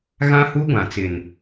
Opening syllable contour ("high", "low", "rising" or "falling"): high